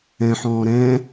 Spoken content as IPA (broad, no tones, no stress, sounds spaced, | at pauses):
ɛ̃ ħ ɔ̃ː ɾ ɛ̃